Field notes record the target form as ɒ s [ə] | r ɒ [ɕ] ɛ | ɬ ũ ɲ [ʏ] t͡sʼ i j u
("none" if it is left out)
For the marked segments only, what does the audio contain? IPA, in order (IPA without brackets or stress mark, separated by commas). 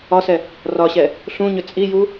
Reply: ɛ, ɕ, ʏ